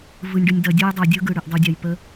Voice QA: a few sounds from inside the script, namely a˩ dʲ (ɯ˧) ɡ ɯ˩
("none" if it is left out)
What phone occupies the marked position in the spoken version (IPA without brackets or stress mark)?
ɯ˧